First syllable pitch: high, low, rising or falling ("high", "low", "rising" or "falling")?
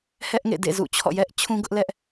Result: high